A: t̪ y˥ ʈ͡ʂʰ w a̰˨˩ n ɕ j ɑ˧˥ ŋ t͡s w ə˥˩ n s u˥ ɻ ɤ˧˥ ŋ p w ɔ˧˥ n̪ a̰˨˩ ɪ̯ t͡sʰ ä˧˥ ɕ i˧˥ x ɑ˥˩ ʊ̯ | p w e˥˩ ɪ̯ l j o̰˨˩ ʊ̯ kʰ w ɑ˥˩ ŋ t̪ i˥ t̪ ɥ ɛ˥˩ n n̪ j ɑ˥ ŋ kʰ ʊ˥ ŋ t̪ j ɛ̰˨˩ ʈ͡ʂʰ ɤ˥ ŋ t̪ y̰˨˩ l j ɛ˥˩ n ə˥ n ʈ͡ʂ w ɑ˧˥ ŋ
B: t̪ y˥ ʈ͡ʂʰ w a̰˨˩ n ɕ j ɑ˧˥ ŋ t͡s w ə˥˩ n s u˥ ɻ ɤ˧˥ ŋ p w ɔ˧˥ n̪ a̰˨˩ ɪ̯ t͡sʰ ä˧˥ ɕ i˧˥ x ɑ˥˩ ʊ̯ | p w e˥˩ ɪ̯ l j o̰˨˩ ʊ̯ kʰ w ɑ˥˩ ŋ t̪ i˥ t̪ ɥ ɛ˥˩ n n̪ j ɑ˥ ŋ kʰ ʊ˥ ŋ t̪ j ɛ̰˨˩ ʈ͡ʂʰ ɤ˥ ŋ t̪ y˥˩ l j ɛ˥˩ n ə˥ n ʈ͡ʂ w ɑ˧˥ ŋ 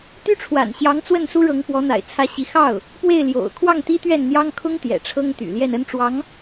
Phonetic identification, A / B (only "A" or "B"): A